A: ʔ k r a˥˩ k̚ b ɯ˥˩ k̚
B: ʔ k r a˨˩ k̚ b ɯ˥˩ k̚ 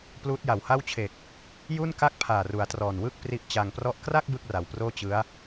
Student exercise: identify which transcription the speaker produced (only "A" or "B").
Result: A